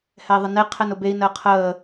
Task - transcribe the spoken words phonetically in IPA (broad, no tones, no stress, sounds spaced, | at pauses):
h ɛ i̯ ðˤ ə n e qʰ ɛ n ʊ b e i̯ n əː qʰ əː